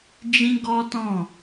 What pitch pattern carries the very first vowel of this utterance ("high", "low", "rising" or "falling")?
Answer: high